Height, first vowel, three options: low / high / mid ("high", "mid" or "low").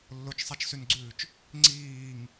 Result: mid